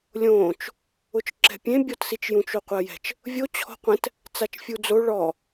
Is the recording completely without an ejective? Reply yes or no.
yes